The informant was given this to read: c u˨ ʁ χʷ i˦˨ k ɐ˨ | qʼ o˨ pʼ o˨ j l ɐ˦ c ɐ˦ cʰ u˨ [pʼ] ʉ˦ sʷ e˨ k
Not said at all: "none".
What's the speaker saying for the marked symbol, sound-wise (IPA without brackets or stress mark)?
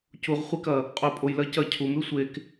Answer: m